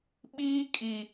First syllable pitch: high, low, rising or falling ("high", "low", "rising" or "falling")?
high